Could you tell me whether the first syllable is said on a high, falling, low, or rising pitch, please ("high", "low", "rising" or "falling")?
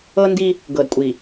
high